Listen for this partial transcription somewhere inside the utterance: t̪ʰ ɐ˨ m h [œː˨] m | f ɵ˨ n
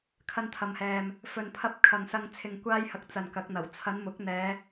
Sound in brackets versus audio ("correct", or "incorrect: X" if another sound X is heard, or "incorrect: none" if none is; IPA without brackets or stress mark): incorrect: ɛː˨